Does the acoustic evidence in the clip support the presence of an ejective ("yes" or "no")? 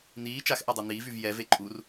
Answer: yes